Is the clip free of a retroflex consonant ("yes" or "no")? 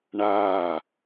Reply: no